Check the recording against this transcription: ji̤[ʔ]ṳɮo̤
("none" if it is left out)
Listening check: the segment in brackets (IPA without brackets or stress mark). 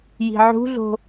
ʕ